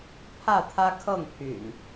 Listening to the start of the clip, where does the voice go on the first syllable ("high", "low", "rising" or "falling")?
falling